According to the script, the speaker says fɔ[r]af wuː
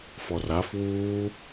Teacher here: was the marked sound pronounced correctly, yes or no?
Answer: yes